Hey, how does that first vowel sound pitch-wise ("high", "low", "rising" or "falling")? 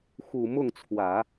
low